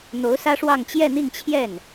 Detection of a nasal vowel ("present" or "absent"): absent